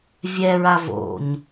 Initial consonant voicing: voiced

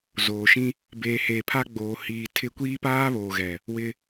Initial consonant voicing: voiced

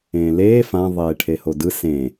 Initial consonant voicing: voiced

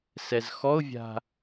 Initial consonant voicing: voiceless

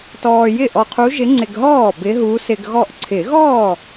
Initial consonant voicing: voiceless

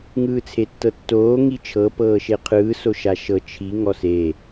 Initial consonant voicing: voiced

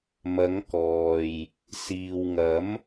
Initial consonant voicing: voiced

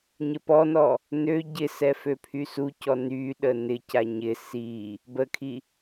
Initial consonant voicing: voiced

